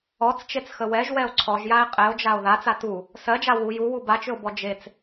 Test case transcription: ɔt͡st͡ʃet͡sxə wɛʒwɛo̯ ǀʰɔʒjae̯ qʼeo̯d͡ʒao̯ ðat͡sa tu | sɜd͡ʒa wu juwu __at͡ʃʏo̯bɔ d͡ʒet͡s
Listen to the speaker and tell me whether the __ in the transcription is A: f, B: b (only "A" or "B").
B